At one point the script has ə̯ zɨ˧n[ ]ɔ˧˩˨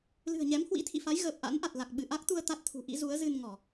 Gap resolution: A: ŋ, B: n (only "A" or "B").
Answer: A